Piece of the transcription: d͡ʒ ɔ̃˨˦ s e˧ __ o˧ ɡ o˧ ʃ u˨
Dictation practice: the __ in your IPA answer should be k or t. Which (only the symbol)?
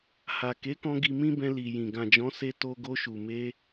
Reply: t